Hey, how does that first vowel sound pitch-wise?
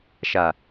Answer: low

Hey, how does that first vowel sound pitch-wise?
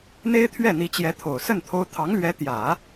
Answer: high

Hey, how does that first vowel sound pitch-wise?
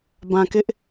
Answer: low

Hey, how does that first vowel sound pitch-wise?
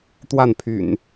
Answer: falling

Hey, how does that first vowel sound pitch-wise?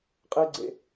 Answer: high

